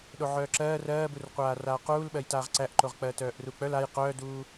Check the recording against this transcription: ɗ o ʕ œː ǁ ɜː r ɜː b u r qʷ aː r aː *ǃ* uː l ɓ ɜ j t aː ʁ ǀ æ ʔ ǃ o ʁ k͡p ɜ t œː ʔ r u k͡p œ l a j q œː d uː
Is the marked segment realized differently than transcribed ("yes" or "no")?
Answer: yes